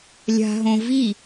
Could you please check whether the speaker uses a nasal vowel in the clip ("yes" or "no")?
yes